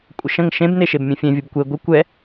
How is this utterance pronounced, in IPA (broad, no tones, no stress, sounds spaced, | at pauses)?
kʷʼ ə ʃ ə̃ ŋ ʃ ẽ b n e ʃ e b mʲ ẽ fʲ ẽ vʲ ə b kʷ e ɡʷ ə kʷ ɛ